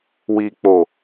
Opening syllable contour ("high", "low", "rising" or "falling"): low